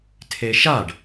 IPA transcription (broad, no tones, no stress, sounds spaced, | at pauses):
tʰ e ʃ a ɖ